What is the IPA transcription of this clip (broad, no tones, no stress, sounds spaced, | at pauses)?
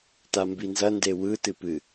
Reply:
t a m b i n z ɐ n d e w ɯ t ɨ p ɨ